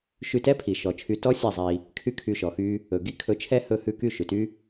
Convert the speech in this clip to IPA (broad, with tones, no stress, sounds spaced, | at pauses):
ʃ y˧ t ɛ˦ pʰ i˨ ʃ ɔ˨ t͡ʃʰ y˧ t ɔ˦ sʲ ɛ˦˨ zˤ i˧ | kʰ y˦ kʰ y˧ ʃ ɔ˨ x y˦ | ɵ˨ ɡ i˦ kʰ ɵ˧ t͡ʃʰ ɛ˦ h ɵ˦ h ʉ˦˨ k y˦˨ ʃ ʉ˨ t y˦